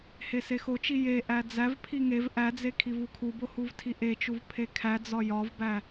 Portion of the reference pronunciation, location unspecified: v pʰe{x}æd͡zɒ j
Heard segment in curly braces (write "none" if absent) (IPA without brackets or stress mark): kʰ